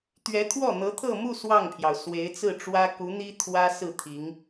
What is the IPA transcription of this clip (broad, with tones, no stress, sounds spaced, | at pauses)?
t̪ ɥ ɛ˧˥ t̪ʰ w ɔ˥˩ n̪ ɤ˧˥ t̪ʰ ɤ˥˧ m u˥˧ s w ɑ˥˩ ŋ pʰ j ɑ˩ ʊ̯ s w e˧˥ ɪ̯ t͡s ɹ̩˥˩ ʈ͡ʂ w ä˥ k u˧˥ n̪ i˥ t̪ʰ w ä˥ s ɹ̩˥˩ t̪ʰ i˧˥ ŋ